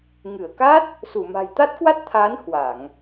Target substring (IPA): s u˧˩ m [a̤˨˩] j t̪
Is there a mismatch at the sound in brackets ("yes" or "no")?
no